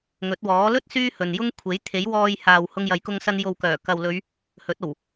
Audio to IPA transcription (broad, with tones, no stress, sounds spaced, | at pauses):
ŋ ɵ˨˥ t̚ w ɔː˨˥ l ɵ˥ t̚ s yː˥ h ɵ˨ n j ʊ˥ ŋ kʷʰ e˨˥ j t̪ʰ e˨˥ j w ɔː˧ j h aː˨ w h ʊ˧ ŋ j ɐ˨˧ j k ʊ˧ ŋ s ɐ˧ n j o˨ w k œː˨˩ k ɐ˨ w l ɵ˨˧ ɥ | h ɵ˨˥ t̚ o˨˩ w